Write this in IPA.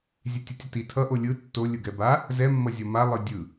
zʲ e tʲ ɯ tʲ ʌ t i tʰ ʌ ʔ o lʲ ɯ tː o lʲ ɯ ɡ ɛ b a | z ɛ mː ʌ zʲ ʌ m a lˠ ɯ dʲ ɯ

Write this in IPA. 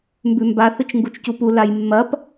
m b ʉ m b a θ ɨ t͡ʃ ŋ ɡ u t͡ʃ c u p u l a j mː ɐ p

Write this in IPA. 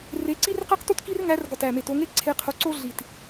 r e˨˦ ǀ i˦ r q e˦ q t u˦ t k i˦ r ŋ æ˨˦ r ɡ ɒ˨˩ t æ˨˩ m e˨˩ t o˨˦ ŋ e˦ ǀʰ e˨˦ qʰ o˨˦ ǀ o˦ ɮ i˨˩ t

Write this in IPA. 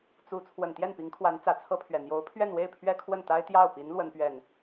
t͡s u˧˥ t͡sʰ w ə˨˩ n t̪ j ɛ˥˩ n p i˧˥ ŋ kʰ w a˧˥ n t͡s ä˨˩ t͡sʰ ɤ˥ pʰ ɥ ɛ˨˩ n̪ j o˧˥ ʊ̯ pʰ ɥ ɛ˥˧ n w e˥˩ ɪ̯ pʰ ɥ ɛ˥ kʰ w ə˥˩ n t̪ a˥ ɪ̯ t̪ j ɑ˥˩ ʊ̯ p i˧˥ n l w ə˥ n p ɥ ɛ˥˩ n

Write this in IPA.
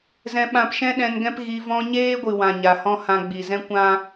z ɛ̃˧ ɓ ã˧ p ʃ ɛ̃˦ ɗ ɛ̃˧ n ɡ ɛ̃˦ p ɣ i˧ v ɔ̃˧ ɲ eː˦ ɡʷ ɨ˨ w ã˨ ɲ a˨ h ɔ̃˦ h ã˧ ɡ͡b i˨ z ɛ̃˦ kʷ ã˦

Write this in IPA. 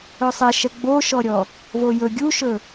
ɵ sˤ ɛ ʃ ɛ ɡ͡b o ʃ ɔ ɾʲ ɔ | v o j ɵ ɡʲ u ʃ ɵ

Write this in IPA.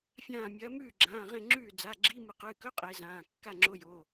fʲ ãː˧˩ mʲ ɐː˨˦ m ʉː˥˨ ɡ͡ǁ ãː˩˧˩ ʁ ẽ˥˨ ŋ͡ǁ ʉː˥˨ d͡z a˩˧˩ ɡ͡ǁ i˧˥˧ m ɨ˨˩˦ q ɨː˩˧˩ k ɵ˧˥˧ qʼ e˨˦ z ãː˩˧˩ kː a˥˨ ŋ͡ǁ o˧˥˧ j o˩˧˩

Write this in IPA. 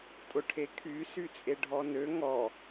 tʼ ʊ ʈʰ e kʰ y s y t͡sʼ e ɖʱ ɔ n ø ŋ ɔ

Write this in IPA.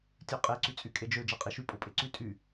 tʲ ø qʼ e ǀ y t͡sʼ y kʼ e d͡ʒ ø d͡ʒ ɑ qʼ i ʃ y pʼ o pʼ e ǀ y tʼ y

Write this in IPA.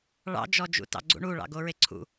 ɭ ɑ̰ d͡ʒ ɔ d͡ʒ ṵ t ɑ̰ ɡ͡ǀ ṵ ɳ u ɭ ɑ̰ ɡ o ɹ e ǀʰ ṵ

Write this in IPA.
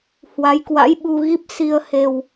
h w a˨˦ j k w a̰˧˥ j ɓ u˧ ɣ i˦˥ p̚ s i˧ ə̯ h e˧ w

